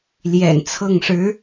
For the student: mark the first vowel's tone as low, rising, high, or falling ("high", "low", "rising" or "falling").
low